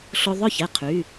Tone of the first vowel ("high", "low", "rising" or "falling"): high